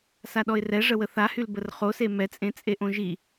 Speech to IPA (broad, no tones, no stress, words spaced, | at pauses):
saɗɔɪ̯rɛ ʐəwəθahyl bərχose mɛt͡sʼẽ t͡sʼeʔõʒi